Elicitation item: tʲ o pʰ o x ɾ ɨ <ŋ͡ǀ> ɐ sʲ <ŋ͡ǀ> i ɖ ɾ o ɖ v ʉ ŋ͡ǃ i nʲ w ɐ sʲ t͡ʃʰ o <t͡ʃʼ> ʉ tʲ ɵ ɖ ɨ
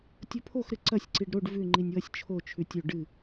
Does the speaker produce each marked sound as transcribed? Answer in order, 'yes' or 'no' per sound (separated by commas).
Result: no, no, no